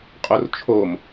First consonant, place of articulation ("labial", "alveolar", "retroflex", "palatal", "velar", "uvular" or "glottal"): uvular